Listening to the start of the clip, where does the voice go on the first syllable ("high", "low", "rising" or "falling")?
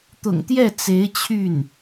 low